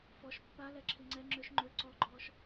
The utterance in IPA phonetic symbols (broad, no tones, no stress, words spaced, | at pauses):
fɔʃ pːa lɛǁʰiŋ͡ǀɛ ŋ͡ǁøʃ ŋ͡ǃø ǀɔɡ͡ǃɔːʃ